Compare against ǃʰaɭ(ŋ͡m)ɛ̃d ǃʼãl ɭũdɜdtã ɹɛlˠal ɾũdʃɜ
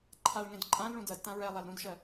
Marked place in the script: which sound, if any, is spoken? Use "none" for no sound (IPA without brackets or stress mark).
ŋ